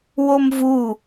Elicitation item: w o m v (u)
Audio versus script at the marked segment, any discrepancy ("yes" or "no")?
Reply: no